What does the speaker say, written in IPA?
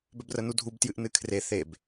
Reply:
b œ b r ə n u dʱ u b t j ɨ ʔ n ɨ kʰ r e θ e b

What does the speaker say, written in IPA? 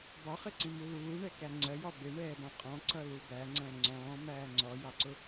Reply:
b ɒ χ ɪ ǀ ĩ m u l uː ɳ ɛ k æ ŋ͡ǀ ɜ j ɒ b ɪ ɳ ɛː b ɔ̃ qʼ ɔ̃ ǀ ʌ l u b æ ŋ͡ǀ æ̃ ŋ͡ǀ ɔ̃ː m æː ŋ͡ǀ ɔ j ɑ ǀ ʊ

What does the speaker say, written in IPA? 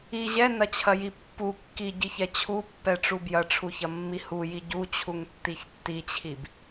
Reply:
i ʑ ɛ n ɐ t͡ɕʰ ɐ j i pː u kː i ɟ i ç ɛ t͡ɕʰ u pː ɛ ʈ͡ʂ u b j ɐ ʈ͡ʂʰ u ç ɐ mː i h u j i ɟ u t͡ɕʰ u ŋ tː i ç tː i t͡ɕʰ i b

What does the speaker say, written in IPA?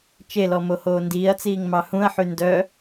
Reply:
t͡ʃ e l ɔ m o h oː n d iː ɐ̯ t͡s iː ŋ m ɑ h ũ ɐ̯ ħ y n d œ

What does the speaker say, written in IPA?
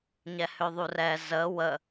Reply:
ɲ ɛ h ø ðˤ u r ɛ z ə w ə

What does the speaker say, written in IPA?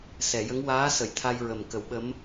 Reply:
s ɛ˨˩˨ j ə˧˥ ŋ w aː˧˥ s ə˨˩˦ j t̪ʰ a˧ j ɹ ə˨˩ m k ə˨˩˦ w ɓ ə˧˥ m

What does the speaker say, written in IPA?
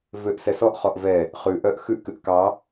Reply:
v ø ʔ s ɛ s ɔ ʔ χ ɔ ʔ v ɛ | χ ʉ ʔ œ ʔ x ʉ ʔ k ʉ ʔ k ɑ

